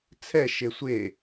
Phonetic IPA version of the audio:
t͡sʰ ɛ ʃ e sʷ e

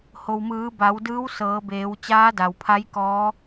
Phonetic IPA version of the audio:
h o˩ w m ɯː˩˧ b a˩˧ w d ɯː˧˥ w s ɤː˩˧ b eː˩˧ w t͡ɕ aː˧˥ d a˩ w pʰ a˧˥ j k ɔː˧˥

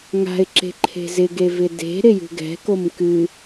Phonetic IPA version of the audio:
ŋ a̤ ɪ̯ ǁ e̤ ǃʰ e̤ z ɪ ɡ e v ɪ d e̤ ɾ ɪ j ṳ ɡ ɛ̤ k o m k ɨ

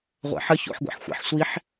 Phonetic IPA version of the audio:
ʁʷ æ̰ ħ ə ç o̰ ħ ɡʷ æ̰ ħ xʷ æ̰ ħ sʷ i ħ

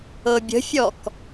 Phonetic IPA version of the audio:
ɤ bʲ ə̤ fʲ ɔ k

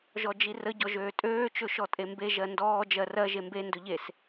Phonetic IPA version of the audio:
ʒ ɔ d͡ʒ i r ə ɟ ɔ ʒ øː tʼ øː t͡ʃ ɵ ʃ ɔ tʼ e m b e ʒ ɜ n d ɔː d͡ʒ ɜ r ɜ ʒ e m b e n d ɵ ʎ e s

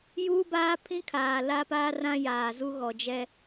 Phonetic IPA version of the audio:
j uː˦ b aː˦ pʰ ĩ˦ kʰ aː˨ l a˦ p aː˦ r ã˦ j aː˨ z u˦ ɣ ɔ˨ d͡ʒ ɛ˦

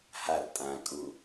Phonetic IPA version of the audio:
h a r tʼ ãː kʼ u

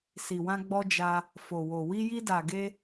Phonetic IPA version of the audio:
s i˨ w ã˧ ɡ͡b ɔ˧ d͡ʒ a˧ | f o˨ w o˨ w i˧ j i˧ d a˨ ɡ e˧

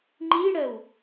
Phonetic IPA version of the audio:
ŋ͡ǃ i ɽ ɜ w

